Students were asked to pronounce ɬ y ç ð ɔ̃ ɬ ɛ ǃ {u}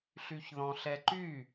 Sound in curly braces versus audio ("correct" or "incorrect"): incorrect